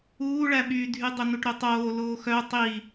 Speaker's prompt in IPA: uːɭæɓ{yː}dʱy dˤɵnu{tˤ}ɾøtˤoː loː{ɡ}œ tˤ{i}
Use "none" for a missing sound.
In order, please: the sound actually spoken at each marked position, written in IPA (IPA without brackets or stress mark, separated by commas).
yː, ʈ, x, i